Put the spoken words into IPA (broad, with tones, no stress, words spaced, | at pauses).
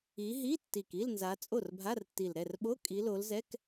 i˨˦ɦi˧˥˧tːi˨˩k i˧˥˧lnza˨˦ t͡sʼo˥˩rbʱa˧˥˧rtːi˨˩l ɾɛ˥˩rɓo˧˥˧ kʼi˨˦lo˨˦lzɛ˧˥˧k